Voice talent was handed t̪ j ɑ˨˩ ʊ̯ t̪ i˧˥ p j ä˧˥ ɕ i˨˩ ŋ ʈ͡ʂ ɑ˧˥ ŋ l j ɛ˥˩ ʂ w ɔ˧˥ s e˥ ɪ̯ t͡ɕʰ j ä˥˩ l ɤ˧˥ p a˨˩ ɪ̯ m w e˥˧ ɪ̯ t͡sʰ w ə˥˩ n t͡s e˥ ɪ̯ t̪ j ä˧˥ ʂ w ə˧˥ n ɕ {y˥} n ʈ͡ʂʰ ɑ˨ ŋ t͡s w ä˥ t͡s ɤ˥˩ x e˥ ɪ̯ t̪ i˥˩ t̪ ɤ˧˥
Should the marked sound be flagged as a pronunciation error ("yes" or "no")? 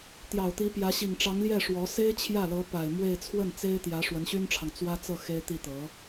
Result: no